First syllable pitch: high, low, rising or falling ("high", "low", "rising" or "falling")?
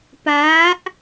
rising